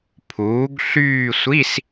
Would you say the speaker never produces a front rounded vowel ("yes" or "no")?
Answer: no